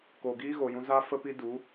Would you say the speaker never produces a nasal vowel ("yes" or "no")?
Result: no